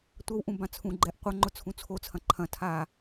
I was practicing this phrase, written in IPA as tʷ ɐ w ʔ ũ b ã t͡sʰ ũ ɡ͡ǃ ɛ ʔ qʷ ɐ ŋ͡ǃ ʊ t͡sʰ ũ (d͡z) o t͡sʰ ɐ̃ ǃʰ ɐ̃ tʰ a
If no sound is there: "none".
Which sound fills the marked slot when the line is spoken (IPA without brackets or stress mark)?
t͡sʰ